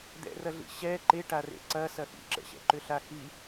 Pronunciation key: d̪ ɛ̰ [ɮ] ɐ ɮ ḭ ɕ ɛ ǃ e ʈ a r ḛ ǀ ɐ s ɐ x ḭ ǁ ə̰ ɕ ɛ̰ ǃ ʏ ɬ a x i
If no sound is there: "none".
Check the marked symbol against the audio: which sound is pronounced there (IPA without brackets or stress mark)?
r